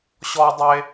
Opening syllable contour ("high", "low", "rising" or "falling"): high